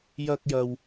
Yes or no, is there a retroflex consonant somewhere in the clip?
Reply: no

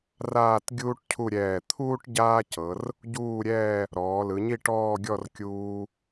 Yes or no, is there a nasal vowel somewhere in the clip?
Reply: no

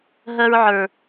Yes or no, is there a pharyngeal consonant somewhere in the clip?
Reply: yes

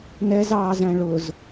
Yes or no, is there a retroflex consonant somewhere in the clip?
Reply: yes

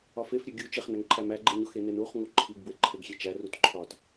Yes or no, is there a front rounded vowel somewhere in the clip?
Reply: no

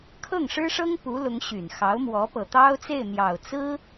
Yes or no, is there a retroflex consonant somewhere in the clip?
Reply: yes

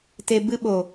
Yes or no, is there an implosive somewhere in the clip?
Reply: yes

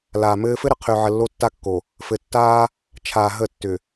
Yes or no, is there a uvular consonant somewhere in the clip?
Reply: yes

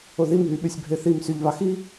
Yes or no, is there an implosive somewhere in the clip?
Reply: yes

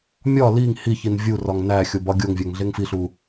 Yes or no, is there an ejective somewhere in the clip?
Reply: no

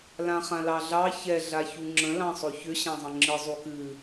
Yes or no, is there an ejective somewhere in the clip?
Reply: no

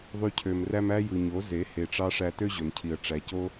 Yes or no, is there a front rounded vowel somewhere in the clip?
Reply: yes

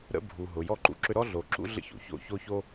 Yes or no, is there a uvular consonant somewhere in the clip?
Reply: no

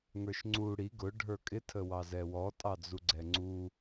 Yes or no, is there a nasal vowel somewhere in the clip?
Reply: no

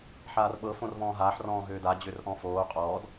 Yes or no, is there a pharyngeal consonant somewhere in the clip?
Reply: yes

